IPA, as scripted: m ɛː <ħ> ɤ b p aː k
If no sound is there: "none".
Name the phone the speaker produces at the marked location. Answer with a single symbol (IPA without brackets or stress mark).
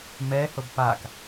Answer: h